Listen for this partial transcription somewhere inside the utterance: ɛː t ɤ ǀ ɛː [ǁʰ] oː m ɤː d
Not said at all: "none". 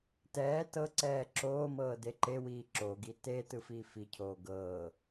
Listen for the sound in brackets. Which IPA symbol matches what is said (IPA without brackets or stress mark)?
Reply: ǁʰ